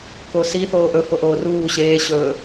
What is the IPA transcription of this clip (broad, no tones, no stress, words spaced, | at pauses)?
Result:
kosi θoːʔɵ foʔoːruː ɕeː ɕɵː